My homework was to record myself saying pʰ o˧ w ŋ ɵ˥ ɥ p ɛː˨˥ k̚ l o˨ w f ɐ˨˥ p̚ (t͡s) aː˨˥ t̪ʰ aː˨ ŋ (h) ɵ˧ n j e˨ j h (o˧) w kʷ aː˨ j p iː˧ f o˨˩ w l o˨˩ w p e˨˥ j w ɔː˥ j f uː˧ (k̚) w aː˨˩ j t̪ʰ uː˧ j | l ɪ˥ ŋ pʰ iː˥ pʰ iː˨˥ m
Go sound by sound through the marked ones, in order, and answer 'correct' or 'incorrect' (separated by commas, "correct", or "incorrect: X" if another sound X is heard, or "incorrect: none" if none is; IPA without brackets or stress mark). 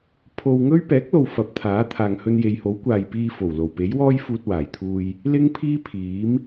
incorrect: t̪ʰ, correct, incorrect: o˨˥, incorrect: t̚